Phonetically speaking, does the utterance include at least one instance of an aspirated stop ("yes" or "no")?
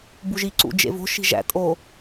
no